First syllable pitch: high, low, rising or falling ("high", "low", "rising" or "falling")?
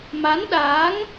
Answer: rising